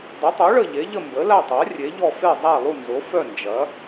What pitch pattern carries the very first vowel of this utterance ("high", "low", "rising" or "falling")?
rising